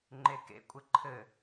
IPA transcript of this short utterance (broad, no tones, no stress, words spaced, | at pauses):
ŋ͡ǃekḛkʷʼɘ ǃʰɘ